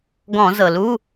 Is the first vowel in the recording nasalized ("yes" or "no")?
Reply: yes